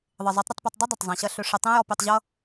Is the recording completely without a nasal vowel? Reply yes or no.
no